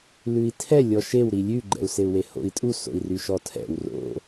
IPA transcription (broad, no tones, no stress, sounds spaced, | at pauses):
l ʉ i̯ tʰ ɛ lʲ ɔ ʃ e w ɾ i lʲ ʉ ɡ͡ǃ ɛ̰ u̯ s e u̯ w e h o̰ i̯ tʼ u s o̰ i̯ r y ʃ ɔ tʰ ɛ̰ w r o̰